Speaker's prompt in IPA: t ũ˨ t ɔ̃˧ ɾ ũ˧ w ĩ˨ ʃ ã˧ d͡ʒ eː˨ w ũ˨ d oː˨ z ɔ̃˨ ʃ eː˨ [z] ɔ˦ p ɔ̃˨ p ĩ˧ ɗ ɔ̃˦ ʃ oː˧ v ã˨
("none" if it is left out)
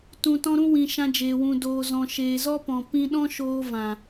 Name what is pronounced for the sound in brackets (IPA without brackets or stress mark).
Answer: z